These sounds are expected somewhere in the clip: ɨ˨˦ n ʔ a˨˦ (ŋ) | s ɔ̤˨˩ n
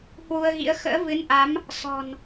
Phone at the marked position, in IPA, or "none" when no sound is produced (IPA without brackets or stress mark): m